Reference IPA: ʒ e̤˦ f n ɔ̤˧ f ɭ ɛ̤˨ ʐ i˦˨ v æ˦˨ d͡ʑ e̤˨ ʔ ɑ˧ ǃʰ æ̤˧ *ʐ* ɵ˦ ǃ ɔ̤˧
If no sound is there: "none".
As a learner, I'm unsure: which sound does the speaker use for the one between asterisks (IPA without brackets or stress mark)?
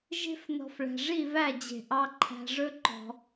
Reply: ʐ